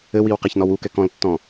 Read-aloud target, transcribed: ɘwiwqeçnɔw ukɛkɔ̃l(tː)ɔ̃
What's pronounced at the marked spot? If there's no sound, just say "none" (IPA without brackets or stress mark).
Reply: tː